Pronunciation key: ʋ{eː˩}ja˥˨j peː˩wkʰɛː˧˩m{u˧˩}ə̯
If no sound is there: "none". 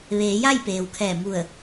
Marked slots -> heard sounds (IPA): eː˩˧, u˧˩

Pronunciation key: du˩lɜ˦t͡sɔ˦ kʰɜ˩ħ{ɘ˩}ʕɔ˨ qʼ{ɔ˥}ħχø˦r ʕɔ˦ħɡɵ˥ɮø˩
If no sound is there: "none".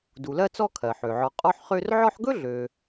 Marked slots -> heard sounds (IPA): ø˩, ɔ˦

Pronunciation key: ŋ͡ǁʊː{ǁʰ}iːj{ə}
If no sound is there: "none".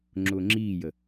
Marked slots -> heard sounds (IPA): ŋ͡ǁ, ə

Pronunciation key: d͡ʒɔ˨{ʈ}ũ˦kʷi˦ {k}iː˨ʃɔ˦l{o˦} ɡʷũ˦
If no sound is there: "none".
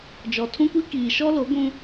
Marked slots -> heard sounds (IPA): tʰ, k, o˨˦

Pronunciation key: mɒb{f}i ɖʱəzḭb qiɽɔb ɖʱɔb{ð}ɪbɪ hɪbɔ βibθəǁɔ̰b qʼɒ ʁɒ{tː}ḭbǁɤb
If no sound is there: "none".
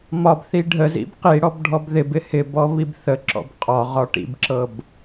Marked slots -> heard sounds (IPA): θ, ð, ʈ

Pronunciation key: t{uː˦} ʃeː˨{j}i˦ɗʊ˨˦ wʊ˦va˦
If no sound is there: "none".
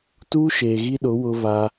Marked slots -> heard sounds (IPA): uː˦, ɣ

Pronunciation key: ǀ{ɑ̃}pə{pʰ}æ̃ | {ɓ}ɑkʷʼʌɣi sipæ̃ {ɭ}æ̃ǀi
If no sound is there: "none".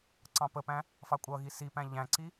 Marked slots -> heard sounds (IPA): ɑ̃, p, f, ʎ

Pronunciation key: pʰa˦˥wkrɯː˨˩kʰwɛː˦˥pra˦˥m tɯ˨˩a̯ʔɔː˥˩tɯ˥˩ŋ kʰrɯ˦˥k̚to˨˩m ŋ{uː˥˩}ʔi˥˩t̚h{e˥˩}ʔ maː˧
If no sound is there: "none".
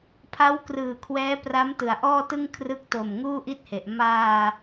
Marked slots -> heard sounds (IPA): uː˥˩, e˨˩

